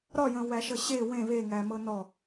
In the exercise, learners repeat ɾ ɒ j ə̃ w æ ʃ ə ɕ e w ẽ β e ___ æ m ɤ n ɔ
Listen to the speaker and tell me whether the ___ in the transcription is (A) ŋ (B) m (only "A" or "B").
A